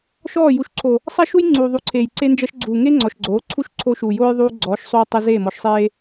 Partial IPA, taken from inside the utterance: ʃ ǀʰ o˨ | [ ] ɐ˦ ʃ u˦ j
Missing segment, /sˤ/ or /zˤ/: sˤ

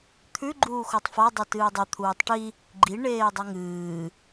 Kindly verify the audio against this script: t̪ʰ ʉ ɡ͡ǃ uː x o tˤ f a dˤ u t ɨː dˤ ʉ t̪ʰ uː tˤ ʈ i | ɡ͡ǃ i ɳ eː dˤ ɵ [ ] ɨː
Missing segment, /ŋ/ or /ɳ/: ŋ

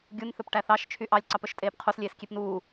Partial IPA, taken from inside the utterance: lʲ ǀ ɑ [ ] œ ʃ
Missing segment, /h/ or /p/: p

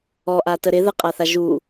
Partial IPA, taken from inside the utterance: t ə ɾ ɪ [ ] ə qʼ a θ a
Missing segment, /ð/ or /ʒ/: ð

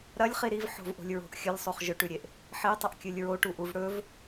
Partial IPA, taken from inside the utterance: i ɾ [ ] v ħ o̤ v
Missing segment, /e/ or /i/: i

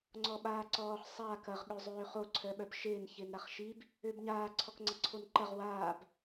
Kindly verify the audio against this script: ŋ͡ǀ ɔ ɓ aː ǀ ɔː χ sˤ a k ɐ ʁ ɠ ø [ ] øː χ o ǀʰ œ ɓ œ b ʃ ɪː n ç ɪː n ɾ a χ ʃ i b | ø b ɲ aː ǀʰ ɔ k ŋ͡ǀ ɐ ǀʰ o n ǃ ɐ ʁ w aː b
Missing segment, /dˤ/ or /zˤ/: zˤ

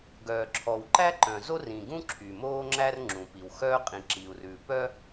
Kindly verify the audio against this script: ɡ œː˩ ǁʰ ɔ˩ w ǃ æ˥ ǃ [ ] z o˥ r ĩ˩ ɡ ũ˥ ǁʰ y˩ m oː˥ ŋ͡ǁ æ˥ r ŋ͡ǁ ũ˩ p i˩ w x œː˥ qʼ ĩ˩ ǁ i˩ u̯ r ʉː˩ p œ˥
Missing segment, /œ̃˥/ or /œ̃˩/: œ̃˩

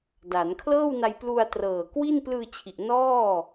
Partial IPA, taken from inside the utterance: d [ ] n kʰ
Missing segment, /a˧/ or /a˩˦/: a˩˦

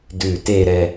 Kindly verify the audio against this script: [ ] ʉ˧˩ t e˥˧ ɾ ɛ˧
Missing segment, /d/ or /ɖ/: d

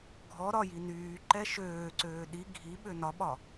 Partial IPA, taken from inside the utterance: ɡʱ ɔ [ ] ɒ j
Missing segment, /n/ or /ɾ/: ɾ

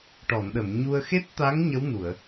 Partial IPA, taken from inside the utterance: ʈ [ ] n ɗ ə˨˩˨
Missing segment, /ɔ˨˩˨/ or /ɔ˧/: ɔ˨˩˨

